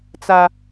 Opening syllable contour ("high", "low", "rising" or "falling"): high